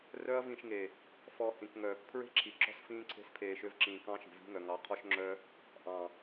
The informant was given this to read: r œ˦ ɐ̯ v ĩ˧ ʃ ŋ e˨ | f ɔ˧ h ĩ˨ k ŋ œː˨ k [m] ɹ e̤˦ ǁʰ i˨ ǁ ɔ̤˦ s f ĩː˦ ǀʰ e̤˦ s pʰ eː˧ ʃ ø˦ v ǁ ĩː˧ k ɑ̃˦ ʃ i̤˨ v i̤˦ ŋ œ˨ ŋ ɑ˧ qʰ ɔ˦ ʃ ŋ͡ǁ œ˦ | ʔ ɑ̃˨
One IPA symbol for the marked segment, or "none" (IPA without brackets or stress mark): pʰ